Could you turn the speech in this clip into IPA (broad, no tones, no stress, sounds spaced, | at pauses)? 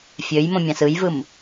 fʲ ø j m õ mʲ ɑ̃ s ɯ j v ɯ m